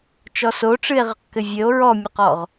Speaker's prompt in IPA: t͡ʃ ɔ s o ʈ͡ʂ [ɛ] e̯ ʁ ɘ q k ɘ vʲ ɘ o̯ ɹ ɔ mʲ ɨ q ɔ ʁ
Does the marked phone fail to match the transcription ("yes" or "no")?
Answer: yes